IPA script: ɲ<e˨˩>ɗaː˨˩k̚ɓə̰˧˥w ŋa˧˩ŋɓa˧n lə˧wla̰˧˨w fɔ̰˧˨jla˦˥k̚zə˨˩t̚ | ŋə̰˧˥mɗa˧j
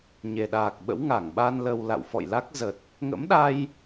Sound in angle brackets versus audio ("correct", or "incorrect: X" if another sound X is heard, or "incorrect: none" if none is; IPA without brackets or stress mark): correct